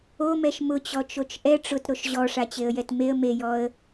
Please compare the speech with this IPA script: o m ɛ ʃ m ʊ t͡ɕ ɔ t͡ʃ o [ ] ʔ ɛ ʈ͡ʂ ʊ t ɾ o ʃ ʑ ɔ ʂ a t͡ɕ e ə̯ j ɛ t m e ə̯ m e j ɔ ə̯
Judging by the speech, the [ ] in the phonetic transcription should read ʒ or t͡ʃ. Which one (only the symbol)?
t͡ʃ